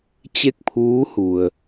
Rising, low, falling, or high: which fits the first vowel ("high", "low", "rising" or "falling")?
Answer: falling